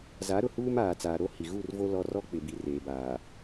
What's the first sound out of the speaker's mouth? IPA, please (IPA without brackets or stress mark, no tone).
z